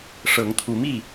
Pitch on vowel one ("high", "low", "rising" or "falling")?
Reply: rising